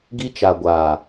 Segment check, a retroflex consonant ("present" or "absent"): absent